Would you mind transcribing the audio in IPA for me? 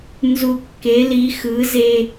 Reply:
n z u˧ kː e˩˥ l i˩˥ x ɯ˩˥ z e˧

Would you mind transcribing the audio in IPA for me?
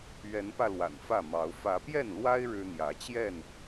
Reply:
ɥ ɛ˨˦ n p ä˧ l w a̰˨˩ n f ä˥˨ m ɑ˨˦ ʊ̯ f ä˨˦ p j ɛ˥˨ n l w a˦ ɪ̯ ɻ ɻ̩˦ n̪ j ä˨˦ t͡ɕ j ɛ˥˨ n

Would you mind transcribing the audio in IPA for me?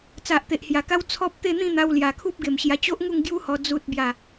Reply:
t͡s a˨ ʔ t̪ e˨ ʔ h j a˨˩ k a˦ w t͡sʰ ɔ˦ p̚ t̪ e˥˧ n̪ ĩ˥˧ n̪ a˧ w l j a˨˩ kʰ u˦ p̚ ɡ e˨˩ m ɕ j a˧ t͡ɕ o˦ ʔ ŋ u˥˧ ŋ ɡ j u˦ h ɔ˧ d͡z u˦ t̚ b j a˥˧

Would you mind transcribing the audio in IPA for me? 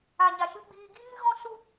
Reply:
a˨ ɲ a˨ ʃ ɨ˧ ɡ͡b iː˧ ɡ i˦ ŋ ɨ˦ ɣ ɔ̃˦ s u˦

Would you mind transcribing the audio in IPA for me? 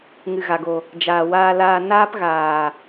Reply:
ŋ ɨ˨ ɣ a˨ ɡ o˨ | d͡ʒ aː˨ w aː˧ l aː˧ n aː˦ p ɣ aː˨

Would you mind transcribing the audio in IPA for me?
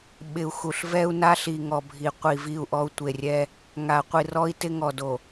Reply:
ɓ ɪ˨ u̯ x u˨ ɬ v ɛ˦ u̯ n a˦ ɬ i˨ ŋ ɔ˨ bʱ i˨ qʷ i˨ v i˦˨ u̯ ʔ ɔ˦ u̯ tʷ e˨ rʲ ɛ˦ | ŋ a˨ qʷ i˨ r ɔ˦ i̯ t ɪ˦ ŋ ɔ˨ d o˨

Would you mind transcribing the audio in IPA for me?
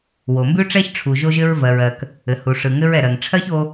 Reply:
w o˩ m b ʉ˥ ʈ͡ʂ ɛ˥ ç ʈ͡ʂʰ u˩ ʒ o˥ ʒ ɘ˥ ɹ v ɜ˩ ɹ ɜ˩ k | ɘ˩ h u˩ ʂ ɯ˩ ŋ ɘ˥ ɹ ɛ˩ ɾ ɜ˩ ŋ ʈ͡ʂʰ ɜ˥ ç o˥

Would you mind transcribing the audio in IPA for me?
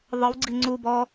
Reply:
ðˤ ɯ w ɡ͡ǀ i ŋ͡ǀ u b ɔ

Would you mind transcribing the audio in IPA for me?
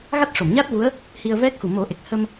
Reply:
ɣ a˦˥ t̚ ʂ o˨˩˨ m ɲ a˦˥ t̚ v u˧˥ ə̯ | h i˧ ə̯ v ɛ˦˥ k̚ x u˨˩ m o˨˩˦ ʔ e˨˩ k̚ h ə˧ m

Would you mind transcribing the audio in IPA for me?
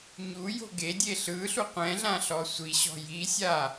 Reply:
ɲ u j o̤ ɡ e dʲ e ɬ ɯ ɬ u qʷ ɛ̃ ɮ ã ɬ ɔ sʷ i ɕ ɔ̤ j i sʲ a

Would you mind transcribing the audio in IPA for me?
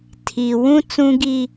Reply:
tʰ iː˨ w ũ˦ t͡s ũ˦ ɡ i˦

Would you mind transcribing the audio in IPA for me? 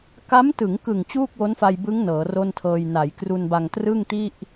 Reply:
k a˦˥ m t ɯ˩˦ ŋ k ɯ˨˩ ŋ t͡ɕ uː˥˩ k̚ w o˦˥ n f a˧ j b ɯ˦˥ ŋ n ɤː˩˦ r o˥˩ n tʰ ɤː˧ j n a˩˦ j k r u˧ n b a˧ ŋ t r ɯ˥˩ ŋ t i˥˩ ʔ

